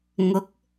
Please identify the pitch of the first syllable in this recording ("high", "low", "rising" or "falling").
rising